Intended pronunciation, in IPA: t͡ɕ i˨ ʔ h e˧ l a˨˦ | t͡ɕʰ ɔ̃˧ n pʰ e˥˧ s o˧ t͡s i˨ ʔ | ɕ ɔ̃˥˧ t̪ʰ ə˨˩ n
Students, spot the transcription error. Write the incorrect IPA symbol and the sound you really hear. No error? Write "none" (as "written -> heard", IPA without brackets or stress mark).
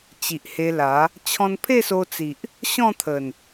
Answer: none